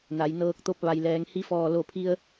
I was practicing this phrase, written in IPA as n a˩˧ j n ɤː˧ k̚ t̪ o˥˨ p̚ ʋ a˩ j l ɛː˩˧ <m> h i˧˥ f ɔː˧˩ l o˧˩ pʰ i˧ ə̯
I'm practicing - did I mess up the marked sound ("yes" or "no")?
yes